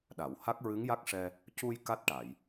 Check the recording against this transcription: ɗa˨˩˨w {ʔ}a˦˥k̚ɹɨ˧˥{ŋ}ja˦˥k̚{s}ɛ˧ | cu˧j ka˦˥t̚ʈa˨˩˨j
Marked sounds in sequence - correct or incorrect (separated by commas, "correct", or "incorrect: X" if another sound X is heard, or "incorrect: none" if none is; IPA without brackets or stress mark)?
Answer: incorrect: h, correct, incorrect: ʂ